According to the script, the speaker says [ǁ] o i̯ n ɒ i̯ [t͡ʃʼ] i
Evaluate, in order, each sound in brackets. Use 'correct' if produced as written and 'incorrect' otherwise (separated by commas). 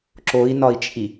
correct, correct